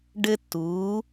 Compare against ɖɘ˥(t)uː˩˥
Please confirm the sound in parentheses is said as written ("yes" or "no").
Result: yes